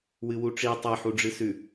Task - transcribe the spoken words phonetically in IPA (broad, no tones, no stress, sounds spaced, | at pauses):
w ɨ w u ʈ͡ʂ i tˤ e ħ u ɖ͡ʐ ɨ s ʉ